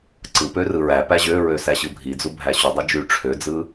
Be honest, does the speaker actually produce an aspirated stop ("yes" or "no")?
yes